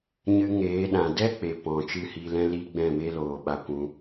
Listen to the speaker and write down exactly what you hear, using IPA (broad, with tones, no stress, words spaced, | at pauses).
ɲɨ˧ŋeː˨˦ɗã˨ dɛ˦ k͡pe˨ pɔ̃˨ t͡ʃɨ˦˨hi˧lɛ̃˦ li˦ɡ͡bɛ̃˦˨ me˦loː˨ɓa˧kʷũ˧